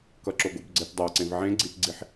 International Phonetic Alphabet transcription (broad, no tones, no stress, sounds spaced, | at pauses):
k ʌ ǁ o ɡ o b ɡ͡ǀ e t dˤ a ǀ ẽ v ʕ ẽ ɡ͡ǀ i t ɡ͡ǀ i ħ